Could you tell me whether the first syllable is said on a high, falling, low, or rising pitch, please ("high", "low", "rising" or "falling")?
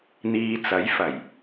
low